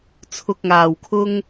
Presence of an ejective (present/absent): absent